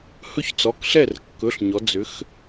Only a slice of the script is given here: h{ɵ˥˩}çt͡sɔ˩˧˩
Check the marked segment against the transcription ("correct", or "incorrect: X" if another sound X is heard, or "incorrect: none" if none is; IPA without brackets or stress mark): correct